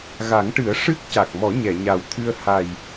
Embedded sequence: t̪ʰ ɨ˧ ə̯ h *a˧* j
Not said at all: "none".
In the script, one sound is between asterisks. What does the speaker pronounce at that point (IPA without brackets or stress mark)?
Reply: a˨˩